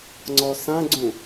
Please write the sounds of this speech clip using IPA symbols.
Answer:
ŋ͡ǀ ɔ s ã ɡ͡ǀ ũ

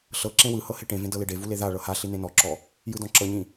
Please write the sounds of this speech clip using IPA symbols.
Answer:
ɬ ɤ ǁ ẽ w ɯ h ɤ h e ʈ ẽ v ẽ d ɤ l e ɖ e v u l e ð a ɭ ɤ h a ɬ i n ẽ n ɔ ǁ ɔ | j ɯ d ɔ̃ ǁ ɤ ɲ ĩ

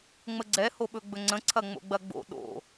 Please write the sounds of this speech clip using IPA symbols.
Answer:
ŋ͡m ə ɡ͡ǀ ɛ h o ɓ ɵ ɡ͡b ɵ ŋ͡ǀ ə̃ ǀʰ ɐ ŋ͡m o̰ ɡ͡b ɐ ɡ͡b o̰ ɗ o̰

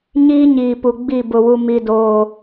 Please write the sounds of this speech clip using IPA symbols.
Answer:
ɲ iː˦ ɲ iː˨ p u˨ ɡ͡b i˦˨ b ʊ˨ w u˨ m i˨ d oː˨

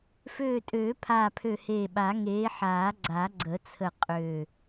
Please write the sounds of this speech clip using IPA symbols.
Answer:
f øː˧˩ tʼ øː˨˩˦ pʰ aː˧˩ pʰ ø˧˩ h eː˧˩ ɓ a˨˩˦ ŋ eː˨˦ ħ aː˨˩˦ ɡ͡ǀ a˨˩˦ ɡ͡ǀ ə˨˩˦ t͡sʰ ə˧˩ qʼ ø˧˩

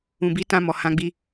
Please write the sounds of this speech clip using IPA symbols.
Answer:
ũ˨ b i˨˦ t ã˧ m ɔ˨ h ã˧ ɡ͡b i˧

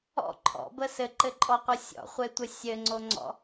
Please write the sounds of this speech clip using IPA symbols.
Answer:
ɔ̰ ǃʰ ɔ̰ b ə s ɘ ǃ ɘ ǃʼ ɔ qʷ ʌ sʲ ɔ̰ χʷ e tʷ ə sʲ ɘ ŋ͡ǀ o ŋ͡ǀ ɔ̰

